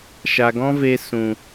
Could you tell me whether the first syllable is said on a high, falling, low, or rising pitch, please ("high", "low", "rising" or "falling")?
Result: low